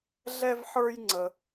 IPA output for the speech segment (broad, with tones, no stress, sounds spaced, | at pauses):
ɮ ɛ˥ v ħ ə˞˥ j ŋ͡ǀ ə˧